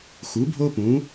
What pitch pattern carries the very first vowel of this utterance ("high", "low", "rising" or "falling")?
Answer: rising